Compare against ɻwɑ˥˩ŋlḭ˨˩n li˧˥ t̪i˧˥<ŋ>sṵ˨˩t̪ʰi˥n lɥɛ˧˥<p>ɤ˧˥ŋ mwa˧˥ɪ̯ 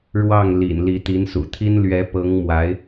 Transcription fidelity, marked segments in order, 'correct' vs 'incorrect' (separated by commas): incorrect, correct